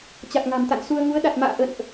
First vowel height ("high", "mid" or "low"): low